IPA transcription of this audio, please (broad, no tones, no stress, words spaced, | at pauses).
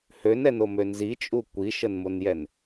hønɛnomø nzit͡ʃʼu kʷiʃənmonjɛn